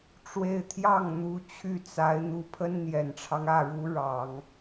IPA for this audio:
ʈ͡ʂ w e˥˧ ɪ̯ t̪ʰ j ɑ˥˩ ŋ n̪ u˧˥ t͡ɕʰ y˥˩ t͡s a˧˥ ɪ̯ n̪ u˧˥ pʰ ə˥ n n̪ j ɛ˨˩ n ʈ͡ʂʰ ɑ˦ ŋ ä˥˩ ɻ u˧˥ ɻ ɑ˨˩˦ ŋ

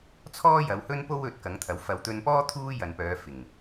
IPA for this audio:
t͡sʰ ɔː˥ j ɐ˨˧ w h ɵ˥ n p o˥ w ɵ˧ t̚ k ɐ˨˥ ŋ t̪ʰ ɐ˨˥ w f ɐ˨ w t̪ ɵ˧ n p ɔː˥ t̪ʰ uː˥ j ɐ˨ n p œː˨˧ f ɪ˨˩ ŋ

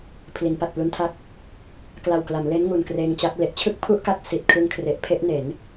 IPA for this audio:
pʰ l i˩˦ n p a˨˩ t̚ p l u˦˥ n tʰ a˥˩ k̚ | k l a˨˩ w k l a˩˦ m l e˦˥ n ŋ u˨˩ n k r eː˧ ŋ t͡ɕ a˦˥ k̚ l e˦˥ ʔ t͡ɕʰ ɯ˥˩ k̚ pʰ u˥˩ ʔ k a˦˥ k̚ s i˨˩ t̚ kʰ ɯ˧ ŋ kʰ r e˨˩ ʔ pʰ e˥˩ ʔ n e˩˦ n

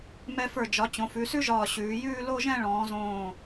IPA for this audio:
m ɛ˧ f ə˞˧˩ d͡ʒ ɒ˩˧ t͡ɕ õ˩˧ f ʉ˩˧ s ʉ˥ ʒ ɒː˧˩ ɕ ʉː˩˧ j ʉː˥˧ l o˥˧ ʒ ɛ̃˥˧ ɭ ɔ̃ː˩˧ z õː˧˩

